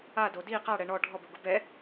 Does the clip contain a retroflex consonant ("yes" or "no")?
yes